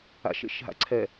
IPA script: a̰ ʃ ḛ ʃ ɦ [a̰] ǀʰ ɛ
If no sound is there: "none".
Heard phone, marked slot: a̰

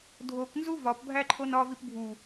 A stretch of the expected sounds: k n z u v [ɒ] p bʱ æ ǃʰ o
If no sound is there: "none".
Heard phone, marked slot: ɒ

